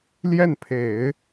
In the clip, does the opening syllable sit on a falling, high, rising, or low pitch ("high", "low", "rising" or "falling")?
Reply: falling